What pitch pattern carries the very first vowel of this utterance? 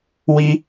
high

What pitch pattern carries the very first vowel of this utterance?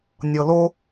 low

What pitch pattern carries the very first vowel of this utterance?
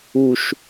low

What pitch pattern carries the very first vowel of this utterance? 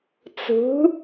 rising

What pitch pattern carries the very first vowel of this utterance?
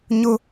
high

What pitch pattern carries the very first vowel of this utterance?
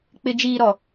low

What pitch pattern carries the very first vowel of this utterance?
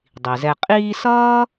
low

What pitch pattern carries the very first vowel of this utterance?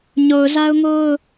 low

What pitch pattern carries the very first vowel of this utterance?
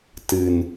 low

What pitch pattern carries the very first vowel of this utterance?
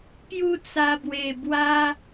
falling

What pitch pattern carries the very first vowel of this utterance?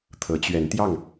rising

